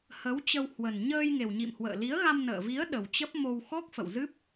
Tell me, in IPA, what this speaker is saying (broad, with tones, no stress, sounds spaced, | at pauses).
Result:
h ə˨˦ w t͡ɕ ə˧ w h w ə˨˩ n ɲ əː˧ j ŋ e˨˩ w ɲ ḭ˧˨ m h w ə̰ː˧˨ l i˨˦ ə̯ ɣ a˧ m n ə̰ː˧˨ v i˨˦ ə̯ ɗ ə˨˩ w t͡ɕ ə˦˥ p̚ m o˧ w x ɔ˦˥ k̚ f ə̰˧˨ w z ɨ˦˥ p̚